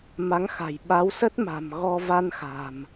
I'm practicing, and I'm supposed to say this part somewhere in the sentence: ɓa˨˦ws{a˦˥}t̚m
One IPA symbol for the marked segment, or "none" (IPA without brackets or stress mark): ə˦˥